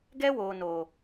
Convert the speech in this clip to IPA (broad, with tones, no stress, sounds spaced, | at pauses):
ɡ ɛ˦ w oː˨ n oː˨